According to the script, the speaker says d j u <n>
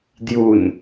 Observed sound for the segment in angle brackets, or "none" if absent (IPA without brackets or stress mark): n